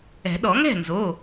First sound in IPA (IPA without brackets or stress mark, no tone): ɛ̤